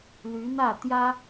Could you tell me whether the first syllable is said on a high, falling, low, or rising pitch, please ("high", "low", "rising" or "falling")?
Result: rising